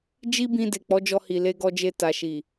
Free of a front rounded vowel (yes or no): yes